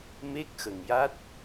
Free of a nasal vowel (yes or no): yes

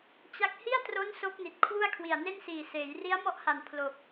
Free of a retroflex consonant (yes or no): yes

